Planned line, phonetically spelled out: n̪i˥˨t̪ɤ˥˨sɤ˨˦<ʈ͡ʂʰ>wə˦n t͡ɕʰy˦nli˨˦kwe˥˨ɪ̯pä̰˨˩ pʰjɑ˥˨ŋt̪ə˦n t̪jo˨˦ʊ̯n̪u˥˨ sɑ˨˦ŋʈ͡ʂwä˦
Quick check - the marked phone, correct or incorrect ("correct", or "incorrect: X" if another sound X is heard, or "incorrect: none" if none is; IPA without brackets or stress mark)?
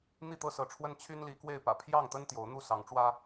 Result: correct